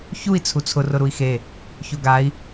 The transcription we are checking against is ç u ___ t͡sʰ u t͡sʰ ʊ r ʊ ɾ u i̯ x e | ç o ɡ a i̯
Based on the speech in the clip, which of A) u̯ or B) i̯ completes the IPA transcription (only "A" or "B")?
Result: B